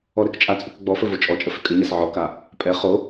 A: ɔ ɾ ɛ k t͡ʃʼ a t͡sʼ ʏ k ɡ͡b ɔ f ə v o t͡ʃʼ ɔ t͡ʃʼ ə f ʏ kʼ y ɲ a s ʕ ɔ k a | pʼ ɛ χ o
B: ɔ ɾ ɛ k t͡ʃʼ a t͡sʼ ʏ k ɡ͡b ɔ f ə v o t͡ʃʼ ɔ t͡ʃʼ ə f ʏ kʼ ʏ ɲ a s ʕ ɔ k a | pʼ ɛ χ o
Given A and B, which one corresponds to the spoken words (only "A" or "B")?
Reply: B